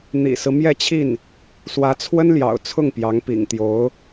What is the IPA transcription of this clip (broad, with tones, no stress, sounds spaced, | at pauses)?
n̪ ḭ˨˩ s ɹ̩˦ m j ɛ˥˧ t͡ɕʰ i˥˩ n | s w ä˧˥ t͡sʰ w ə˥ n l j ɑ̰˨˩ ʊ̯ t͡sʰ ʊ˥˩ ŋ p j ɑ˧˥ ŋ p ḭ˨˩ ŋ t̪ j o˧˥ ʊ̯